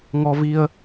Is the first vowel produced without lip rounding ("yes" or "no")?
no